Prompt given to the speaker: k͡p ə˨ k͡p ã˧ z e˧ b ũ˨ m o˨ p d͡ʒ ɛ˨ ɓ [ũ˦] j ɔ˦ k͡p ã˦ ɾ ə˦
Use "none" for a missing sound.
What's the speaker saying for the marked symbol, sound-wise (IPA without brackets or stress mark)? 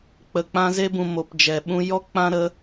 ũ˧